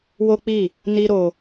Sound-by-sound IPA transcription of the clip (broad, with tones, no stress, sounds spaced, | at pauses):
w o˦ k͡p i˦˨ | n i˦ ɾ o˧